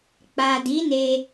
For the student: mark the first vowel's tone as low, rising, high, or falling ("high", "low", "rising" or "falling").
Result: low